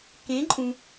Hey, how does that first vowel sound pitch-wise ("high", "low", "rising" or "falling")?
rising